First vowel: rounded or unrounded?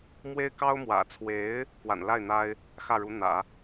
unrounded